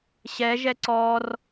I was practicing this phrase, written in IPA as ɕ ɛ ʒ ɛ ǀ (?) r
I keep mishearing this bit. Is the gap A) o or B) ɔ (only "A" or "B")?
B